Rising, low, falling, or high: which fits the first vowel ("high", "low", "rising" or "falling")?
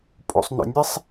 low